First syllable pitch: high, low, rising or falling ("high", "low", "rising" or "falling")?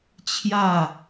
falling